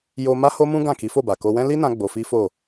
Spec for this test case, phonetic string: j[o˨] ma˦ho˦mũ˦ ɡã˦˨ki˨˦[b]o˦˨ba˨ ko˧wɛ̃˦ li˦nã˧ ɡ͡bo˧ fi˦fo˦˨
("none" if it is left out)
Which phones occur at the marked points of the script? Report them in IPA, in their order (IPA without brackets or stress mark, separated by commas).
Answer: o˧, f